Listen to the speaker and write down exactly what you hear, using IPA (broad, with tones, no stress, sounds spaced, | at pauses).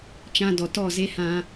t͡ʃ ã˧ d ɔ˨ t ɔ˦˨ z e˦ h ã˧